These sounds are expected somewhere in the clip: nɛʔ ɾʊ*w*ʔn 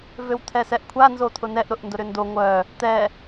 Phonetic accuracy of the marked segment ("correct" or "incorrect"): incorrect